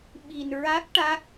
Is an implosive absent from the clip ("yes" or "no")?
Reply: no